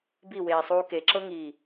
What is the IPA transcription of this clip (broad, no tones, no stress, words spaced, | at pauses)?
biweː sˤuːkeǁɤ ŋiː